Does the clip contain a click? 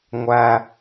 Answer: no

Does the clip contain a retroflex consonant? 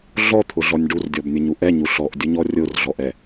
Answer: yes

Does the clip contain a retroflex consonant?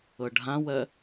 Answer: yes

